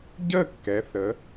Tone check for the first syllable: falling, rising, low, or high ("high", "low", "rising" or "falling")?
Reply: falling